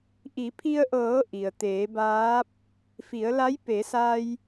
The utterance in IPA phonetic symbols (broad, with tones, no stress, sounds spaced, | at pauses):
ʔ i˩˧ pʰ i˧ ə̯ ʔ ɤː˩˧ ʔ i˩ ə̯ t̪ eː˩˧ b aː˧˥ p̚ | f i˩˧ ə̯ l a˧˥ j p e˩˧ s a˧ j